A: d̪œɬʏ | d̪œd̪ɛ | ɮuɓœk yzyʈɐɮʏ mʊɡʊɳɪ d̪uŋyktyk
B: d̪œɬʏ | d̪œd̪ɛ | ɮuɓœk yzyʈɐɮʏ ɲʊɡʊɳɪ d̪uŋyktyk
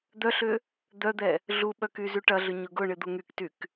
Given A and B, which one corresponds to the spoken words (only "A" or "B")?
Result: B